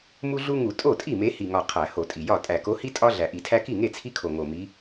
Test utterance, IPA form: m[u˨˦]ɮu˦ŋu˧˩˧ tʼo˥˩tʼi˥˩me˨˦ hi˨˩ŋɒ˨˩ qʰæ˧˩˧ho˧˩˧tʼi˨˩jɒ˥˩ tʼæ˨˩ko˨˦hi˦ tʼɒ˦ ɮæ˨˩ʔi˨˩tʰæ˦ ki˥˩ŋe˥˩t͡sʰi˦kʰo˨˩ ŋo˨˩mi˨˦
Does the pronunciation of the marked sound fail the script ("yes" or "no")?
yes